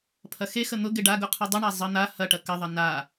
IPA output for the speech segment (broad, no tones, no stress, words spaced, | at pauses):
pʰɐxexə n̪ʊ ɡɪɖaɡʊ qʰʊdˤəɳa zˤə n̪a hɐʈɐ kɐðˤɐ na